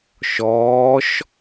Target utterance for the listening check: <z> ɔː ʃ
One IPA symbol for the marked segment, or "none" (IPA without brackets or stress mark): ʃ